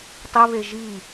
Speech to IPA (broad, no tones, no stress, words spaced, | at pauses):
tˤiβe ʒi